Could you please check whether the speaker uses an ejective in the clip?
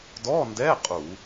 yes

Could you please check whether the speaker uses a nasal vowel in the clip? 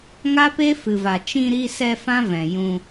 yes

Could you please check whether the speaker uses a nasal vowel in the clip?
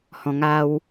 yes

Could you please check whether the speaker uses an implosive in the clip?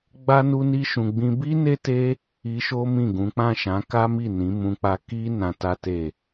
no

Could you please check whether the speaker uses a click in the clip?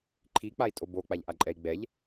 yes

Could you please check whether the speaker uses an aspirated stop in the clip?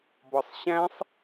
no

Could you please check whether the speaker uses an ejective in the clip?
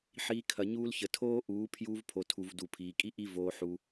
yes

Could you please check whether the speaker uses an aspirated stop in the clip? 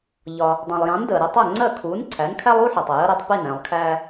yes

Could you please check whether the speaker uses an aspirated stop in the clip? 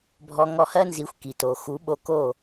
no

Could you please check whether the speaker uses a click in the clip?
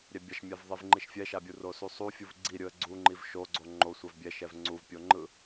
yes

